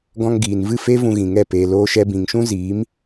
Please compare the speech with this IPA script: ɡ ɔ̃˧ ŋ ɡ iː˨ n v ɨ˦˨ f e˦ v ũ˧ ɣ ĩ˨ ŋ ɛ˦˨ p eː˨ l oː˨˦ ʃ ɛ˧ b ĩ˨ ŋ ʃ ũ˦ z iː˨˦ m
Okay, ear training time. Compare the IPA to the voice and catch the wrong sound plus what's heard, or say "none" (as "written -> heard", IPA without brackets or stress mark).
oː˨˦ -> oː˧